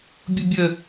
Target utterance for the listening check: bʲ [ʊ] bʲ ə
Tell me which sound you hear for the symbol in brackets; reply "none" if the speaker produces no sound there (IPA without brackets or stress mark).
ʊ